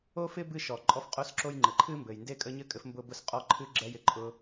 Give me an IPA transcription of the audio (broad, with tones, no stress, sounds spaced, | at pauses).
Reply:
o˥ f ɪ˥ b ɨ˥ ʃ ɔ˩ ǃʼ ɔ˥ f qʼ o˥ s ǁ o˥ j ŋ͡ǃ ɘ˩ ǃʰ ɨ˥ m b ɘ˩ j n d e˥ kʼ ə˥ ɲ ɘ˥ kʼ ɘ˥ f m b ʊ˥ b ʊ˥ s qʼ ɔ˥ ǃʰ ɨ˥ ɡ͡ǁ ɛ˥ j ɪ˩ ǃʼ ʊ˥